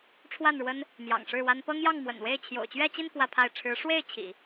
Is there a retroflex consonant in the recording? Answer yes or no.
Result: yes